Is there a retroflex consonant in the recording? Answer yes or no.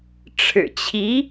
yes